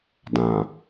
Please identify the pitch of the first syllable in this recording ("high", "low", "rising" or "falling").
low